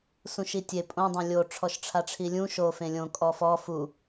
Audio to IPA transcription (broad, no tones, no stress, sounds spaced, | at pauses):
s ũ ʃ i tʲ e pʼ õ dˤ õ lʲ o ʈ͡ʂʰ ɔ ʃ ʈ͡ʂʰ a ʈ͡ʂʰ i lʲ ũ ʃ o f ẽ lʲ õ kʼ ɔ f ɔ f u